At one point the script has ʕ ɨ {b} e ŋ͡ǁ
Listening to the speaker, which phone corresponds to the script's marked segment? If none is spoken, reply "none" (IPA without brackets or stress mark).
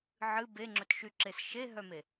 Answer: b